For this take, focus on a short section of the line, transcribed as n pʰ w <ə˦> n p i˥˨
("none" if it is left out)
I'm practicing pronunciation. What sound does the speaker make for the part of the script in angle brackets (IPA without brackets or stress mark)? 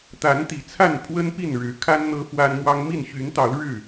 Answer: ə˦